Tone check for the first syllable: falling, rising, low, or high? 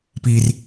high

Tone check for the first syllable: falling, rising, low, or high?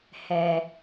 low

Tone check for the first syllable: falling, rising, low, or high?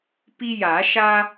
high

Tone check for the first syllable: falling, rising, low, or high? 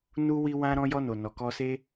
high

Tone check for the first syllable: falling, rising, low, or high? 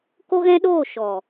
high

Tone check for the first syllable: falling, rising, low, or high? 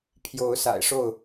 rising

